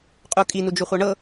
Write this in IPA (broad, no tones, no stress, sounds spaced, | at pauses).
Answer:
qʼ u kʼ i n u d͡ʒ u χʷ ɤ ɳ ɤ